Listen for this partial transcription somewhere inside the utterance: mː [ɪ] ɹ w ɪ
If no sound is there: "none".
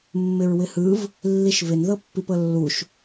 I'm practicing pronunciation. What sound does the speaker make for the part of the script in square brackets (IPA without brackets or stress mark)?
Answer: ɪ